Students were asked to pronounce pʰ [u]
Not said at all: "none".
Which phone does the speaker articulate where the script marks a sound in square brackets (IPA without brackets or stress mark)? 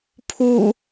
u